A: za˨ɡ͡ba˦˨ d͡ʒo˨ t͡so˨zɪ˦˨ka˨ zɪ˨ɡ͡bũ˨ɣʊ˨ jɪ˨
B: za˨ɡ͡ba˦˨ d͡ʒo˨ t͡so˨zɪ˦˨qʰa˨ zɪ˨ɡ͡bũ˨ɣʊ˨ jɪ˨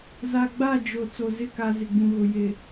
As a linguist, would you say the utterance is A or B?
A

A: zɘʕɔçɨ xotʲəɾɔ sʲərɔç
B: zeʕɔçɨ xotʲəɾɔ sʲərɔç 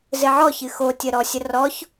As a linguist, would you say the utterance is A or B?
A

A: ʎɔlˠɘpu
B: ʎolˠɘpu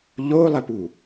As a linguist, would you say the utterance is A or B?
B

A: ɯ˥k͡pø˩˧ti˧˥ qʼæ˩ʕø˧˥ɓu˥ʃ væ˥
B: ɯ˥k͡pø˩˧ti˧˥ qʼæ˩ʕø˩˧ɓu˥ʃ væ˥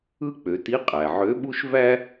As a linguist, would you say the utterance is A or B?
A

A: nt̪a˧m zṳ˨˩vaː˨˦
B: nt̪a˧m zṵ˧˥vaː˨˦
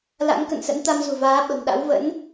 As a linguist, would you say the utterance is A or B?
A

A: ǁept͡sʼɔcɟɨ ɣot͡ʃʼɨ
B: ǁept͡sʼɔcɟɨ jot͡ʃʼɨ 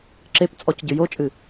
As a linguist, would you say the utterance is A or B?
B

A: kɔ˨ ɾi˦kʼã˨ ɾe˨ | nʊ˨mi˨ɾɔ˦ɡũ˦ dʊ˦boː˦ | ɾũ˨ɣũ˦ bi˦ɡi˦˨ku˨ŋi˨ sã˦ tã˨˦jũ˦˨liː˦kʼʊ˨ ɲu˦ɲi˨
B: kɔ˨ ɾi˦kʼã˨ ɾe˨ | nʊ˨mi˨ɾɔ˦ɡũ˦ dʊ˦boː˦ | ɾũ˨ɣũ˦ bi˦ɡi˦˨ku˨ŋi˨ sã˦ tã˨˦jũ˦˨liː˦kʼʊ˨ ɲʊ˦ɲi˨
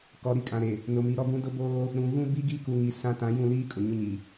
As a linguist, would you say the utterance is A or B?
B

